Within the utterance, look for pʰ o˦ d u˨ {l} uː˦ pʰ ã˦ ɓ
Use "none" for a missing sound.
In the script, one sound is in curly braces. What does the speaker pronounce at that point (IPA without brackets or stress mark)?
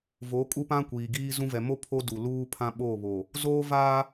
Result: l